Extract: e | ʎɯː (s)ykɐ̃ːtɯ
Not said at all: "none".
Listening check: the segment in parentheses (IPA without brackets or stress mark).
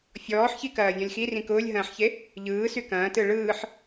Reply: s